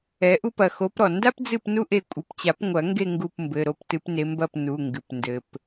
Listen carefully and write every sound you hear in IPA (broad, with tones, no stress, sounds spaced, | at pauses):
ɛ˨˦ ʔ u˥ p ɐ˩˧˩ x o˨˦ p ɾ ɔ˩ n d a˥ p d͡z ɨ˦˨ p n u˥ ʔ e˦˨ kʷʼ ɨ˩˧˩ p t͡ɕ a˨˩˦ p ŋʷ ɐ˨˩˦ ŋ ɡ e˦˨ ŋ ɡ u˦˨ p m b ɘ˩˧˩ ɾ o˦˨ p t ɨ˨˦ p n e˨˦ m b ɐ˦˨ p n u˩˧˩ ŋ ɡ ɨ˩ p n d ɘ˩ p